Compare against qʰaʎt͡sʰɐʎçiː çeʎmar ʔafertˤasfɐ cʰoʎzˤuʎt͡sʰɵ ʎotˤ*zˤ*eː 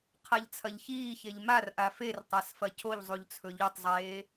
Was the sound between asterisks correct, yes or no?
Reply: yes